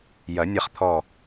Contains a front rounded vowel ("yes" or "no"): no